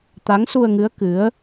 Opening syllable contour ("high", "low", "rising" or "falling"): rising